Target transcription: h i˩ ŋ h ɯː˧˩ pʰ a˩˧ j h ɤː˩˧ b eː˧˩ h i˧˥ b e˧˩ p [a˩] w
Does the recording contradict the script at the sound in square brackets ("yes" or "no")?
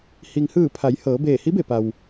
no